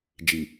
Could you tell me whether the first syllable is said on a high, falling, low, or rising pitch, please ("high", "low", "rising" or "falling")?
low